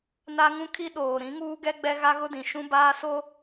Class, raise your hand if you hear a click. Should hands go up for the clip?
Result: no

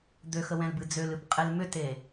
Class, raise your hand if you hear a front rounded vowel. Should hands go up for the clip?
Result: yes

